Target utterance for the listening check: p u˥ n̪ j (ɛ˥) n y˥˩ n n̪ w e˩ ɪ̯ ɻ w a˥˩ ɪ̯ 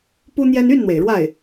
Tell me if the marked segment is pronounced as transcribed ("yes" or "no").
yes